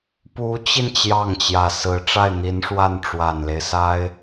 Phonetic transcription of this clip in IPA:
pu˧˥t͡ɕi˧n t͡ɕjɑ˥˩ŋt͡ɕjä˨˩sɹ̩˧˥ ʈ͡ʂa˥˩ɪ̯n̪i˧˥nʂwa˥˩n ʈ͡ʂwa˨˩nle˦ɪ̯sa˥ɪ̯

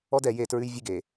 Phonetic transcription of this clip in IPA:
ɔ˦dɛ˨je˦˨ tɹʉ˦jvʲʉ˦ɡe˨

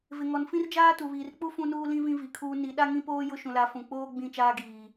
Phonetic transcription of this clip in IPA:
vɪ˨ŋɔ˨nfĩ˦rd͡ʒaː˦ tu˨βiː˨r k͡pu˦ fũ˦nuː˦lĩ˦ vĩ˦vi˨kʰuː˦ ni˨˦ɗa˦ŋĩ˦poː˦ jʊ˦ʃũ˨la˨˦ fũ˨k͡poː˦ ɡ͡bĩ˦˨t͡ʃaː˦ɡiː˨

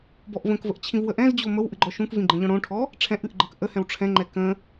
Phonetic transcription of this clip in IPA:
bɔʔvə̃kvəʔ t͡ɕʰĩvwəʔɛ̃zd͡ʑo məwʔɨ ɡ͡ǃɔʃũkvĩ ɡ͡ǃə̃ʎɔ̃ɽõʈʰɔ | ʈ͡ʂʰɛ̃ʔɨʔ ɡ͡ǃəkʔəhɛ̃w ʈ͡ʂʰɛ̃ŋ͡ǃɛ kə̃

